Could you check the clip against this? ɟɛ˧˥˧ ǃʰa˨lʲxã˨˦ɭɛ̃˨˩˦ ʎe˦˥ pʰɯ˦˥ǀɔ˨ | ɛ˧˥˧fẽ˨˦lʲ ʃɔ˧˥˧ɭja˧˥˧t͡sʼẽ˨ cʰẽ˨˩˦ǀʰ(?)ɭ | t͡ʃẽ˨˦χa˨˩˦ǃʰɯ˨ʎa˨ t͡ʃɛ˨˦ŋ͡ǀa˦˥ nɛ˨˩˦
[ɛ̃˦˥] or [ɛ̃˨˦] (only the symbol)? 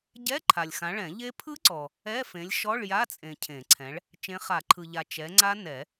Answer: ɛ̃˨˦